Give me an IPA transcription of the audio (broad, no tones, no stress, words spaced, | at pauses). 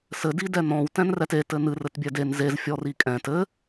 sɘ didɛnɔ̃w tɛ̃nrɛte tɘnɨr ɘtbʲɛden zez fʲɔrikʼɛ̃t ɘ